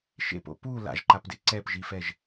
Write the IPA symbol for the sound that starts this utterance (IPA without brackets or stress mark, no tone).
ʃ